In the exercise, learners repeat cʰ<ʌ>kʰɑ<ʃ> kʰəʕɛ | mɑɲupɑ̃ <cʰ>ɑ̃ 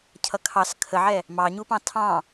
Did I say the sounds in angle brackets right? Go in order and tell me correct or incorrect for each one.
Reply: correct, incorrect: s, incorrect: tʰ

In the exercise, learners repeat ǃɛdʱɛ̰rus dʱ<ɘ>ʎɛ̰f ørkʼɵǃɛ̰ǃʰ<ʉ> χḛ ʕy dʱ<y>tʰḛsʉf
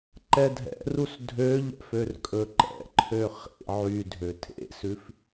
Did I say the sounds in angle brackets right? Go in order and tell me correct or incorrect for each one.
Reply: incorrect: ø, incorrect: ø, incorrect: ø

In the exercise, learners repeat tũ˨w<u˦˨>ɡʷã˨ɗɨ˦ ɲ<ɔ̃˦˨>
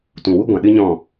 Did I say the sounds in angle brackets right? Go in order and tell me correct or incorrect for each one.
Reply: incorrect: u˦, correct

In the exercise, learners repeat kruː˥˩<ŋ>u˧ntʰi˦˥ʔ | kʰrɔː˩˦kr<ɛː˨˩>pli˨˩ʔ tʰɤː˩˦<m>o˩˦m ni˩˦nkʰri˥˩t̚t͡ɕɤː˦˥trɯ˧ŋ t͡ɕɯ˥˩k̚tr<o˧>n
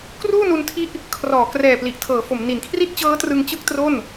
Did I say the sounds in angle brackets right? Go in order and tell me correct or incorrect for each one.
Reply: incorrect: n, correct, incorrect: f, incorrect: o˥˩

